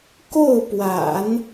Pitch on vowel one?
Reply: falling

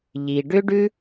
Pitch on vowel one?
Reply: low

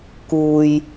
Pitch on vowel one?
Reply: low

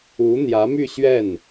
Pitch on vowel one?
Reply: rising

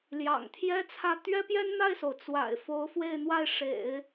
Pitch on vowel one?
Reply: low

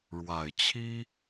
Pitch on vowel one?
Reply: low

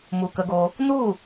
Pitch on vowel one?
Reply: low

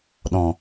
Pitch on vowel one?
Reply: low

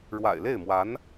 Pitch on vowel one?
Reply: low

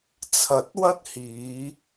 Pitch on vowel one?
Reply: low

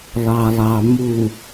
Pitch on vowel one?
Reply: low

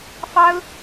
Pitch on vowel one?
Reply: high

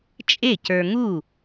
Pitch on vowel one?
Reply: falling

